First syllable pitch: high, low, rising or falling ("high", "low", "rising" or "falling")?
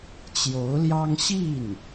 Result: rising